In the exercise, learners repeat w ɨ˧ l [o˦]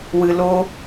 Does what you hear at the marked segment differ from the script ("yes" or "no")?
no